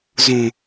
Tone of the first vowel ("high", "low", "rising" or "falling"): low